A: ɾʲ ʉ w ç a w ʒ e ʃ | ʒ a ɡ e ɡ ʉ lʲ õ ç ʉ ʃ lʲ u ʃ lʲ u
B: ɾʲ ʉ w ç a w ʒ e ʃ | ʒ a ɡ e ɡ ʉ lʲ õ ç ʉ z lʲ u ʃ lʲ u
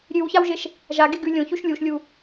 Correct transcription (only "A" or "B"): A